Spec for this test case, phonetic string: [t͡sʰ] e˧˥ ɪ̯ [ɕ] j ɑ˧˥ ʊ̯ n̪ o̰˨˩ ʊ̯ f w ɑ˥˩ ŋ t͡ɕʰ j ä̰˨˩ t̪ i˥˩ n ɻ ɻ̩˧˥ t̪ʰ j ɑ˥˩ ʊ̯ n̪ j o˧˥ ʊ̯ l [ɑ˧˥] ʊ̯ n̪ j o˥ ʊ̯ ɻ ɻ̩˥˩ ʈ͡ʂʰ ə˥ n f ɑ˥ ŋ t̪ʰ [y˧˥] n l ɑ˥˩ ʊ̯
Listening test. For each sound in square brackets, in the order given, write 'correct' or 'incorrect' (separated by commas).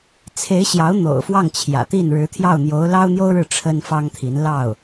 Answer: correct, correct, incorrect, incorrect